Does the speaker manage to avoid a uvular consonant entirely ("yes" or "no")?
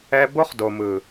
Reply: no